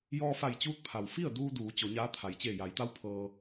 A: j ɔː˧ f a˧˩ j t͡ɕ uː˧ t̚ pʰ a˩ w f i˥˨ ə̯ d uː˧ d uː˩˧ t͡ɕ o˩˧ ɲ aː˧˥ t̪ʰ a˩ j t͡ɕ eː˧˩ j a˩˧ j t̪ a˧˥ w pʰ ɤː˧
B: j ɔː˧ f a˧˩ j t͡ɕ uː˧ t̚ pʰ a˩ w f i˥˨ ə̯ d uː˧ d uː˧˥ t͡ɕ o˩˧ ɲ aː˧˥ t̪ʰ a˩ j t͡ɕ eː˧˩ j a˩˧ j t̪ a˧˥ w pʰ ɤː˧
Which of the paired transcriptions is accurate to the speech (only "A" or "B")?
A